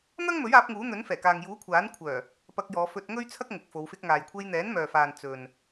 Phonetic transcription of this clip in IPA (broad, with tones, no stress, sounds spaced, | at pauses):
n̪ ɐ˥ ŋ m ɵ˨˥ ɥ aː˨˥ p̚ ŋ uː˨˥ n̪ ɵ˨˥ n f ɛː˨˩ k aː˨ ŋ j uː˨˥ kʷʰ aː˨˥ n kʷʰ œː˨˩ | p ɐ˧ k̚ j ɔː˨˧ f ɵ˧ t̚ ŋ ɵ˥ ɥ t͡sʰ ɐ˥ k̚ ŋ ʊ˨ k̚ f o˨˧ w f ɪ˧ k̚ ŋ aː˨ j kʷʰ e˧ j n̪ ɛː˨˥ n m œː˨ f aː˨ n t͡s ɵ˨ n